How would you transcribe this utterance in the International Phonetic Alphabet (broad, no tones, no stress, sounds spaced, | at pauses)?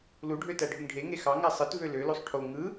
l u ɖʱ ø t æ ɖʱ y ŋ ɖʱ e ŋ e x ɑ ŋ æ sˤ ɯ t v ø l ø l o sˤ ʈʰ o ŋ ɯ